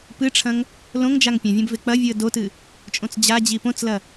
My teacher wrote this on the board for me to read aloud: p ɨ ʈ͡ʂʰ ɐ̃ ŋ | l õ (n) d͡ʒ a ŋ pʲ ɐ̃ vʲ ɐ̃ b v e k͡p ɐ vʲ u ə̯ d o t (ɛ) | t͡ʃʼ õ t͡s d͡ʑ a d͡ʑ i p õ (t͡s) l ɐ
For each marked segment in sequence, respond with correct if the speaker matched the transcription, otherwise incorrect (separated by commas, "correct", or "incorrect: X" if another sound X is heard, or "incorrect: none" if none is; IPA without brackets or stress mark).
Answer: incorrect: ŋ, incorrect: ɨ, correct